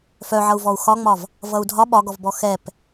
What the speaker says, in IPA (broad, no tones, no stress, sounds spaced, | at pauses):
f œ ʕ ʌ u̯ v ɔ u̯ x ɒ ŋ͡m ɒ v | v ʌ u̯ dʱ ɒ ɓ ɒ ɡ ɔ v b ɔ x ɛ p